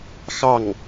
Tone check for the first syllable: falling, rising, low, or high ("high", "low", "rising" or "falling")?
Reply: falling